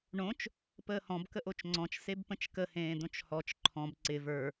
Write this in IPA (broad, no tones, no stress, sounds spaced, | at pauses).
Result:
ɳ õ t͡ʃ | p əː h ɔ̃ b k ə ʔ o t͡ʃ ŋ͡ǀ ɔ̃ t͡ʃ s e b p ə̃ t͡ʃ k ə h ẽː d õ t͡ʃ h ɔ t͡ʃ ǃʰ ɔ̃ b ǀ ɪ v ə˞